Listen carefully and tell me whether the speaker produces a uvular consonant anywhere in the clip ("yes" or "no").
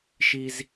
no